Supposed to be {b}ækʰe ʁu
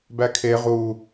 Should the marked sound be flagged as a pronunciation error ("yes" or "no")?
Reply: no